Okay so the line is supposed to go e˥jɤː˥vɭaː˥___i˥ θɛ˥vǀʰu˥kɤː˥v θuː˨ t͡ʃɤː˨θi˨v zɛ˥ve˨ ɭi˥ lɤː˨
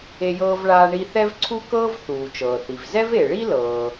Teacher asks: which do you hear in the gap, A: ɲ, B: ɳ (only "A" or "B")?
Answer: B